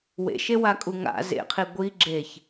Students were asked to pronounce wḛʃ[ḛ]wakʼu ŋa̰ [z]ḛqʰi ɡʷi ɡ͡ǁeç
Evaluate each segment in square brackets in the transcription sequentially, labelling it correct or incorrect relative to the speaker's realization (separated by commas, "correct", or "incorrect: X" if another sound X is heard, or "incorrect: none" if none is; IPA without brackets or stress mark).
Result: incorrect: e, correct